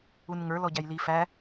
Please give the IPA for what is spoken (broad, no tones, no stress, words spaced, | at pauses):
unŋə˞ lɔɟæjli fæ